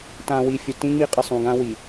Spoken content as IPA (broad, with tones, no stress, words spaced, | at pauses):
tã˨wi˨ fʲɵ˨tĩ˦ ŋ͡mi˦qʼɨ˨ sˤũ˨ɡã˦ wi˨